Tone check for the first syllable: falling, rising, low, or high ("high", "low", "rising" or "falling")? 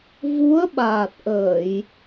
rising